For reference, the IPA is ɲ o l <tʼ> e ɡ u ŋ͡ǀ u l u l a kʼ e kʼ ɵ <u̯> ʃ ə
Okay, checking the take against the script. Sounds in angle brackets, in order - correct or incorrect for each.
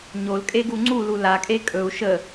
incorrect: kʼ, correct

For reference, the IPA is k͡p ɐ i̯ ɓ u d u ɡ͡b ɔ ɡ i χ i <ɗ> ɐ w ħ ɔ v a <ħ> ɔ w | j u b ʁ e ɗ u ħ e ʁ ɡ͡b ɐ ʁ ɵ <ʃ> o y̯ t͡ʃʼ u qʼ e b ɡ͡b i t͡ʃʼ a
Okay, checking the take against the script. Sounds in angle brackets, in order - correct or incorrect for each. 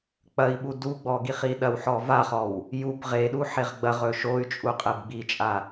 correct, incorrect: χ, correct

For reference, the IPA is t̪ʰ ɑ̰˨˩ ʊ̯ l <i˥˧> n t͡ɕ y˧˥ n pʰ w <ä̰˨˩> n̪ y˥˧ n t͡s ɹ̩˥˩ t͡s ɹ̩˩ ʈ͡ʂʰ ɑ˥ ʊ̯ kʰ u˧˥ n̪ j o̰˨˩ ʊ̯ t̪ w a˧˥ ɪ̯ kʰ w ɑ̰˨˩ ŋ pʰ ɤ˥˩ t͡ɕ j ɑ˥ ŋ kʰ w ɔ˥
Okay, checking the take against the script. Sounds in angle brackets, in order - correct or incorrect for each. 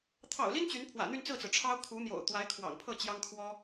incorrect: i˥, correct

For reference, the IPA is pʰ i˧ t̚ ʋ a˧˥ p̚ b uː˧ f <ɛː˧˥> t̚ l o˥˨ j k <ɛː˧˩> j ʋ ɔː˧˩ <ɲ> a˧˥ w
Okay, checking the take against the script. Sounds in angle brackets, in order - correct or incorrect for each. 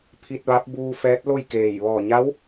correct, incorrect: eː˧˩, correct

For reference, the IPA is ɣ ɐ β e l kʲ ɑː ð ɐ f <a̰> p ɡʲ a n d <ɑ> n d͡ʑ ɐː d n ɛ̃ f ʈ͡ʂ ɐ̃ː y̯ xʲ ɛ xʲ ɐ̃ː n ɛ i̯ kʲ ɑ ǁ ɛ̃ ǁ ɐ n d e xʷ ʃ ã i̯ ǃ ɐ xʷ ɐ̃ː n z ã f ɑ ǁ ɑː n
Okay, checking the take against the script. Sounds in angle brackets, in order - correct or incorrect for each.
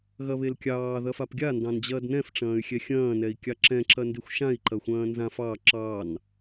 incorrect: a, incorrect: ɑ̃

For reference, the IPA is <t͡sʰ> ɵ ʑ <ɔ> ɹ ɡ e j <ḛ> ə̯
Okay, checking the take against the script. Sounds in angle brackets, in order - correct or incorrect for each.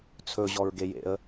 correct, correct, correct

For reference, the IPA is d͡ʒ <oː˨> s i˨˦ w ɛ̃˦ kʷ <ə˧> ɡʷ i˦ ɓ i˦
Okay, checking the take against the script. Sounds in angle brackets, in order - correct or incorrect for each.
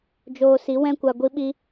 incorrect: oː˧, incorrect: a˧

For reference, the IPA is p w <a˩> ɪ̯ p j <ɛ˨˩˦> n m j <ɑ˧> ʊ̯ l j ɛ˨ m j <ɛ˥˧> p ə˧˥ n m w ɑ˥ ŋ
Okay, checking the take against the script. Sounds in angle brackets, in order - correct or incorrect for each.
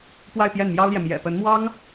incorrect: a˥˧, incorrect: ɛ˥˩, incorrect: ɑ˥, incorrect: ɛ̰˨˩

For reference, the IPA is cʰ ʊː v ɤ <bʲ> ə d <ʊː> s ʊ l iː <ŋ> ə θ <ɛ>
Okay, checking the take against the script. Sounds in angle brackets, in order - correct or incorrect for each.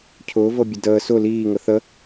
correct, incorrect: əː, correct, incorrect: ə

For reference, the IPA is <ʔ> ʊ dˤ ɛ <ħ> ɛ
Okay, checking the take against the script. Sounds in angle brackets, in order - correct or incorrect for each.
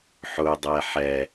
incorrect: ħ, correct

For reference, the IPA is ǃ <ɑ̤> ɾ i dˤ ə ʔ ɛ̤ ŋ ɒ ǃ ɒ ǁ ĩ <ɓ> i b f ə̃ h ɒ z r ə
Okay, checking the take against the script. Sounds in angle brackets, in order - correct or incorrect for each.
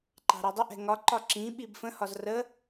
correct, correct

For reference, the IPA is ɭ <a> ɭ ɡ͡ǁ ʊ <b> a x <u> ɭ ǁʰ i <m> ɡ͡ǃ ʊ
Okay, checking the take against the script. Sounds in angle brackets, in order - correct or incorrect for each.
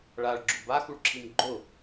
correct, correct, correct, correct

